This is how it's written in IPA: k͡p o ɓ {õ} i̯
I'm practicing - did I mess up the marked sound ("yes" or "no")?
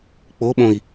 no